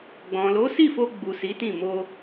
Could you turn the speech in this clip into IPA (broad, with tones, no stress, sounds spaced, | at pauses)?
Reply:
ɡ͡b ɔ̃˨ l o˨˦ s i˦˨ f o˧ ɡ͡b u˨ s i˨˦ t ĩ˦˨ m o˧